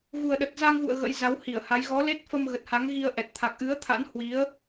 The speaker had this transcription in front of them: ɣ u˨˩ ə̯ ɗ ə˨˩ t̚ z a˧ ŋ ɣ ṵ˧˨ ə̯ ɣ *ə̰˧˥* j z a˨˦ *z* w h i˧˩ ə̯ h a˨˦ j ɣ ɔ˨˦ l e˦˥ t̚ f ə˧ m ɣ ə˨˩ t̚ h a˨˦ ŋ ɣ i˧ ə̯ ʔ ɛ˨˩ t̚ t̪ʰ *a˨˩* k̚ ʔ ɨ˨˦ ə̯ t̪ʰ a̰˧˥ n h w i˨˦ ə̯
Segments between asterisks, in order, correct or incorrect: correct, incorrect: none, correct

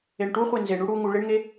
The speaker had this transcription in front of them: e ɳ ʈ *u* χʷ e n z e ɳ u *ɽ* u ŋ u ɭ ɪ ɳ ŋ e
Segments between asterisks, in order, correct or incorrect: correct, correct

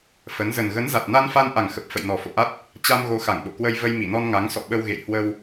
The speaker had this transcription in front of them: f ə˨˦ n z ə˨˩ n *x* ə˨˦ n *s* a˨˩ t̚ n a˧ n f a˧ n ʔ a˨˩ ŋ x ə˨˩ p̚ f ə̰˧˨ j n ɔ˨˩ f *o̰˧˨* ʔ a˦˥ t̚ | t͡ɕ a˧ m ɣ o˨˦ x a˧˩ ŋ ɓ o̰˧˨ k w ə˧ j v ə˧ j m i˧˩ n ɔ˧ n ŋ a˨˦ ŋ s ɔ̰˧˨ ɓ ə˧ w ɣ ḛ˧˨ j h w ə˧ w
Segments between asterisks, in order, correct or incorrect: incorrect: ɣ, incorrect: z, correct

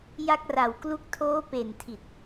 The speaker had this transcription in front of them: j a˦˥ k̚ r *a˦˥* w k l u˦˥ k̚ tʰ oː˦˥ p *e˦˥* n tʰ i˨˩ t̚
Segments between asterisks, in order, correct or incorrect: incorrect: a˨˩, incorrect: e˨˩

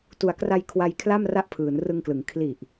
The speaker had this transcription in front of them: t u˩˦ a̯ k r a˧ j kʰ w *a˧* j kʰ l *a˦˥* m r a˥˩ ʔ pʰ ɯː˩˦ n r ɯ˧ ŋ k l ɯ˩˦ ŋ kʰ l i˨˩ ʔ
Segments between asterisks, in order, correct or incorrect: correct, incorrect: a˥˩

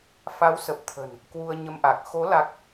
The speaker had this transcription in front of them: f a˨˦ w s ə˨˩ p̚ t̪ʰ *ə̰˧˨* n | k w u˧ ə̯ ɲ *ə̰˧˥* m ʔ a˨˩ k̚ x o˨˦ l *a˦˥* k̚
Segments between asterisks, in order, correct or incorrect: incorrect: ə̤˨˩, incorrect: ə˧, correct

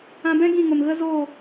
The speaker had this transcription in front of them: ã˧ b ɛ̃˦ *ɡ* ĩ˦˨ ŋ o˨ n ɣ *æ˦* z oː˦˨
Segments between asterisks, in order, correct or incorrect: correct, incorrect: ə˦

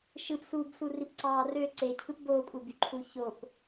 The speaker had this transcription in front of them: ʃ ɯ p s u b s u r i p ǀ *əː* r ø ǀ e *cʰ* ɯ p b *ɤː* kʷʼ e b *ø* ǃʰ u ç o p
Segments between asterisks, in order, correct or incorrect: incorrect: ɑː, correct, incorrect: oː, incorrect: y

